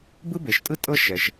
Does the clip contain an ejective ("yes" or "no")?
yes